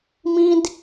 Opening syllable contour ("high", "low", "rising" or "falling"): high